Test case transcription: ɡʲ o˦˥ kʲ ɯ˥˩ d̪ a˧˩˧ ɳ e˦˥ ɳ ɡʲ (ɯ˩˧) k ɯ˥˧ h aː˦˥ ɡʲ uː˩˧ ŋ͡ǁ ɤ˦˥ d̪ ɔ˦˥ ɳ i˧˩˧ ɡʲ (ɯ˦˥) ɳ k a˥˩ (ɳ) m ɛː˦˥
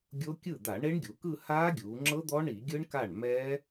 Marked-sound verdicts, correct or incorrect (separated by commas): incorrect, correct, correct